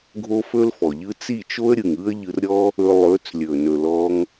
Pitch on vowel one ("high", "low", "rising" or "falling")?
high